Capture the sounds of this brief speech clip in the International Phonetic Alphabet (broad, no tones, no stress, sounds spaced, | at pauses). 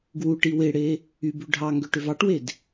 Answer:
ɡ w u ʈ i w e ɽ e | y b y ɖʱ ɑ ŋ ɡ ø ʈ ø v ɑ ʈ w e d